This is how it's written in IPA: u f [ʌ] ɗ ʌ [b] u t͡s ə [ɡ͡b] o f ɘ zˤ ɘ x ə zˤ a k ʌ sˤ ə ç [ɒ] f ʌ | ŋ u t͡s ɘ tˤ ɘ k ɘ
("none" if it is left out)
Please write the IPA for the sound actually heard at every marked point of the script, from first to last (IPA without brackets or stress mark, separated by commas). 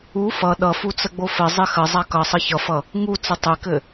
ʌ, f, ɡ͡b, ʌ